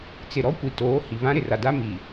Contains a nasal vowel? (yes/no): yes